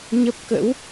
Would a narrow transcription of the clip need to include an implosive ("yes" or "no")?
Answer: no